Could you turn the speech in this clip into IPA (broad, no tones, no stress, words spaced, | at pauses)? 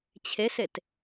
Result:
t͡ɕʰeset